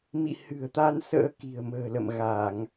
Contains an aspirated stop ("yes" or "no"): no